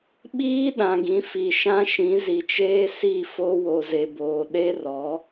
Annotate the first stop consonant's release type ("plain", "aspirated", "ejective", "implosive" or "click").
implosive